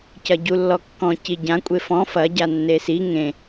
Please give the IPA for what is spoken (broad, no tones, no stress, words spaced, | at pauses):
cɐɟulːɔkːɔ̃ ciɟã kʷʼefɔ̃ fɐ ɟanːesi ŋẽ